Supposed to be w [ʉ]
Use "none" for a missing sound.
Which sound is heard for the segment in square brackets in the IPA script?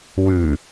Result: ʉ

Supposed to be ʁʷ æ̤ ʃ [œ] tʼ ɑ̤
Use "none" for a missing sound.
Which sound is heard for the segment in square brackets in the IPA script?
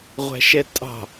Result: ɛ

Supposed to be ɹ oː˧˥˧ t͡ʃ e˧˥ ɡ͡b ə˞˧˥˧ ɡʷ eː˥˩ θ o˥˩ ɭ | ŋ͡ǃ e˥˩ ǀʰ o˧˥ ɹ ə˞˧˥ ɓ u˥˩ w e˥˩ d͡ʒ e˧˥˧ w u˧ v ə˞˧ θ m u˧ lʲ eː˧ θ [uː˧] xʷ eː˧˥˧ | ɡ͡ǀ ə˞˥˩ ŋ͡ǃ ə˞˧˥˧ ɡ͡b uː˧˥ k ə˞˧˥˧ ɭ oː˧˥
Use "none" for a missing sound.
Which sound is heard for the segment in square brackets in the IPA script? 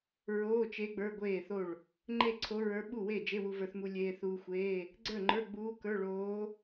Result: uː˧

